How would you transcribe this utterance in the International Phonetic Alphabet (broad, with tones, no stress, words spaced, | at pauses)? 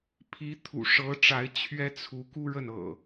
pʰi˨˦t̪ʰṵ˨˩ ʂɤ˨˦ʈ͡ʂa˨˦ɪ̯ t͡ɕʰɥɛ˦t͡sʰu˨˦ ku˦ɻə˥˨nɤ̰˨˩